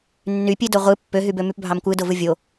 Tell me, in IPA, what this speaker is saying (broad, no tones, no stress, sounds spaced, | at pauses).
nː y pʲ e d o ʁʷ ɯ pː ø ɦ y b ø m y p bʱ ɑ m kʷ ɯ d o v ɯ vʲ o